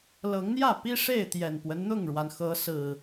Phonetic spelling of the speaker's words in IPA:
l ɤ˨˦ ŋ n̪ j ä˥˨ p i˦ ʂ e˥˨ ɪ̯ t̪ j ɛ˨˩ n p w ə˦ n n̪ ʊ˥˨ ŋ ɻ w a˩ n x ɤ˨˦ s ɹ̩˨˩

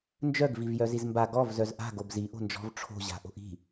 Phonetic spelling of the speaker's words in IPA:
n d͡ʒ œ ɡ v i v j œ z i z m b a ɡ ɔ v z œ z ʔ a̤ ɡ o b z i ʔ o̤ n d͡ʒ ɔ̤ v ʈ͡ʂʰ o̤ ʑ a̤ ʔ o̤ ʔ i̤

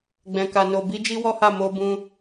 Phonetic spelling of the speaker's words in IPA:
ɡ͡b ɛ̃˧ k a˧ n o˧ b i˦ d͡ʒ i˦ w ɔ˦ h a˦˨ m o˧ b ũ˧

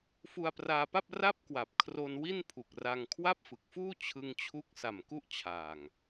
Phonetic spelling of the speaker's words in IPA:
f u˧ a̯ p r aː˧ p a˥˩ p̚ r a˥˩ p̚ k w a˨˩ p̚ kʰ r o˧ n w i˥˩ n pʰ u˨˩ k̚ r a˧ ŋ kʰ w a˥˩ p̚ f ɯ˨˩ k̚ f uː˥˩ t͡ɕʰ ɯ˧ ŋ t͡ɕʰ u˦˥ k̚ s a˨˩ m k u˥˩ ʔ t͡ɕʰ aː˨˩ ŋ

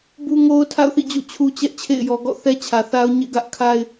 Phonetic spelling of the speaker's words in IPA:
b u˦ ŋ o˦ ʊ̯ tʰ a̰˦˨ ʊ̯ θ ḭ˦˨ d͡ʑ o̰˦˨ t͡ɕʰ u˦ t͡ɕ ɛ˦ ʔ t͡ɕʰ ḛ˦˨ ɪ̯ j ɔ˨ ɡ ɔ̰˦˨ θ ɛ˦ t͡ɕʰ ä˨ θ a˦ ʊ̯ ɲ ḛ˦˨ ɡ ä˦ ʔ kʰ a˦ ɪ̯

